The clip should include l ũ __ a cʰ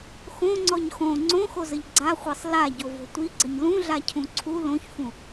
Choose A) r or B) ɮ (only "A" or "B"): B